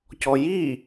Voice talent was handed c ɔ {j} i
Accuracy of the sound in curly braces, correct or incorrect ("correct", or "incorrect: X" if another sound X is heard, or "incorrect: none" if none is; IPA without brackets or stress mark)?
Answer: correct